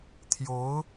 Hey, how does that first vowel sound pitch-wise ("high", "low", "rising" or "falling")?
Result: rising